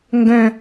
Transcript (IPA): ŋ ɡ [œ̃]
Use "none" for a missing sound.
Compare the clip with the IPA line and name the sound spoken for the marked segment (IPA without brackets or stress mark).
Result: œ̃